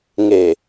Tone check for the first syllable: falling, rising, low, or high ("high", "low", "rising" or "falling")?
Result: low